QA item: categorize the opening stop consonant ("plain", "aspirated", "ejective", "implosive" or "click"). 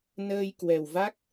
plain